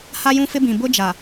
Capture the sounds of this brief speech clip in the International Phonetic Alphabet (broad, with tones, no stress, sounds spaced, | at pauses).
h a˦ j ũ˦ f ɪ˦ b ĩ˨ b ʊ˦ d͡ʒ a˨